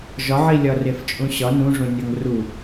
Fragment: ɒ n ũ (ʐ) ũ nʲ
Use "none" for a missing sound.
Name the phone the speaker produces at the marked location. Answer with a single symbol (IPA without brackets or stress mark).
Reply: ʐ